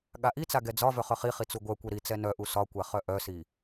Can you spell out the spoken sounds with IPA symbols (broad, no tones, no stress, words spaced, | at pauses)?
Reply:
ɠaʔit͡sa ɡɛd͡zɒvœ χœχiχi t͡suɡʷœkʷɛ ɾi t͡sɛnœʔu sɒkʷa χœʔœsi